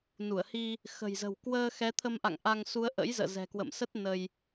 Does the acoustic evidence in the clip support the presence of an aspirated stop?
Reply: yes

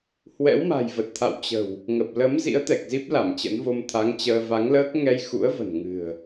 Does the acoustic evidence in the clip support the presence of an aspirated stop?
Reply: yes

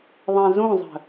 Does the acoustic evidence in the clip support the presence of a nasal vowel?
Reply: yes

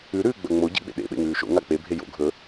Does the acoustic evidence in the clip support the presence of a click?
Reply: no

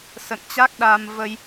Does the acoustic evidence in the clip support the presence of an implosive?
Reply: yes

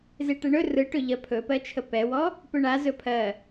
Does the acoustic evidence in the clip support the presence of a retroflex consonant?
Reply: yes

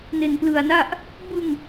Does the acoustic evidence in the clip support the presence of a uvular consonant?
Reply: no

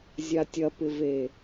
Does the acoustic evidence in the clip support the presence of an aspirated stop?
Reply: no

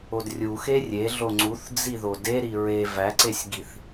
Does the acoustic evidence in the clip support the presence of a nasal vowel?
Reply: no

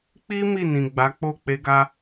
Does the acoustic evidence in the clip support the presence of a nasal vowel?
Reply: yes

